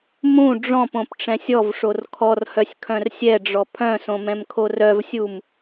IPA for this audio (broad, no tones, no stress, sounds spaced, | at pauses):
m ũ ɖ͡ʐ ɔ̃ p õ p ʈ͡ʂ ɛ̃ sʲ ɔ v ʂ o r kʰ ɔ r h œ sʲ kʰ œ̃ r sʲ ɛ ɖ͡ʐ ɔ pʰ œ̃ s õ m ɛ̃ m kʰ o r œ v sʲ u m